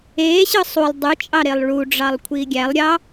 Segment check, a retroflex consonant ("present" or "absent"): present